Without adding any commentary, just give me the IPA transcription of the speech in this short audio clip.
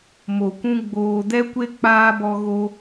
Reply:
m o˨ kʷ ũ˧ ɡ͡b oː˧ d ɛ˦ kʷ e˦ k͡p aː˧ b ɔ˧ ɣ o˦

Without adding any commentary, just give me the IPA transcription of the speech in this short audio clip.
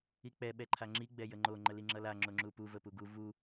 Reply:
i k͡p ɛ ɓ ɛ ǃʰ a ŋ͡ǁ i ɡ͡b ɛ j ə ŋ͡ǃ o ŋ͡ǃ ə l i ŋ͡ǁ ʌ l a ŋ͡ǁ o ŋ͡ǁ u p u v ə p u ɡ u v u

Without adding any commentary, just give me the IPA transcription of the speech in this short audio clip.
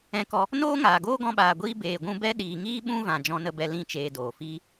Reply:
ɛ̃˧ k ɔ˧ | n oː˦ ŋ aː˨ ɡ oː˦ ɡ ɔ̃˧ ɓ aː˨ ɡʷ iː˧ b eː˨ ɡʷ ũ˧ b ɛ˦ ɗ iː˨ ŋ iː˦ ɓ ũ˦ v ã˨ d͡ʒ ɔ̃˧ n ə˧ b ɛ˧ l ĩ˦˨ t͡ʃ eː˧ d oː˨ f iː˦

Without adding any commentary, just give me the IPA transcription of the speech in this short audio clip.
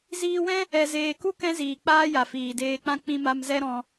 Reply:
z iː˧ w ɛ̃˦ | ɛ˨ z eː˨ k u˦ k ɛ̃˦ z iː˨ k͡p aː˦ j a˨ f iː˨ d eː˧ k͡p ã˦ k͡p ĩ˧ m a˧ m z ɛ˦ ɾ ɔ̃˧

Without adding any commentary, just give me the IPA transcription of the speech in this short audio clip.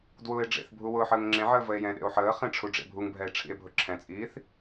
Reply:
d w ʊː e̯ ɖ͡ʐ ḛ θ bʱ u w ʊː ħ əː ŋ ŋ͡ǁ ẽ ʕ əː v ə e̯ j ɛ̃ ɗ ḛ o̯ ħ əː χ ẽ ʈ͡ʂʰ u ɖ͡ʐ ḛ bʱ u ŋ bʱ ɛ e̯ ʈ͡ʂʰ ḭ e̯ bʱ ʊ ǁʰ ɛ̃ t͡sʼ iː θ

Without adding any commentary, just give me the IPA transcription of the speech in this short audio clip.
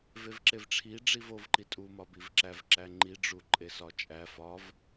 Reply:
v e v ǁ e v ʈ͡ʂʰ i ɖ͡ʐ i v o v ǃ i tʼ u m ɒ b i v ǁ æ v ǁ æ ŋ͡ǃ i ɖ͡ʐ u ǃʼ e s ɒ t͡ʃʼ æ f ɒ v

